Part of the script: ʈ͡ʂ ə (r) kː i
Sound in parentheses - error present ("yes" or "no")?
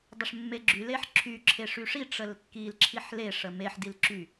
yes